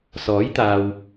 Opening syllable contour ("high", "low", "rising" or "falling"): rising